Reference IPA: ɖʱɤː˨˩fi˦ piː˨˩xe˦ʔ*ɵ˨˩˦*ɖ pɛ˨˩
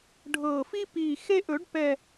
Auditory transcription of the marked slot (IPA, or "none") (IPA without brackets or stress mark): ɵ˨˩˦